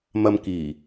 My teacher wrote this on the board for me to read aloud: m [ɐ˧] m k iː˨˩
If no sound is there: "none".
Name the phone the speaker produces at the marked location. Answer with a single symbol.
ɐ˧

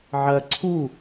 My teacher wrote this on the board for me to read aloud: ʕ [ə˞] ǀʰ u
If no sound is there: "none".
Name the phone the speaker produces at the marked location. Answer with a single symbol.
ɐ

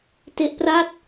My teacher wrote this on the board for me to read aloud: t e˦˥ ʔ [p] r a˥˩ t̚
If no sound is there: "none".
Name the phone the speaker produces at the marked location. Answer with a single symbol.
p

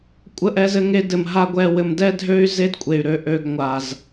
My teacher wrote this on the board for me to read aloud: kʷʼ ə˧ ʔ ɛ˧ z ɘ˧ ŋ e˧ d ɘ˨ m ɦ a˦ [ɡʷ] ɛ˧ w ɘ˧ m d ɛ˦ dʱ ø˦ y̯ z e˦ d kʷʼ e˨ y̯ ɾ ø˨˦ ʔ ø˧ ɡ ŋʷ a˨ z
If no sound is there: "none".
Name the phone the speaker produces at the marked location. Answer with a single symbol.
ɡʷ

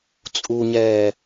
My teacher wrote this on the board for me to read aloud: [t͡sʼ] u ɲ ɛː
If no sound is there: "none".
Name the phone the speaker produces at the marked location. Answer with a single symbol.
t͡sʼ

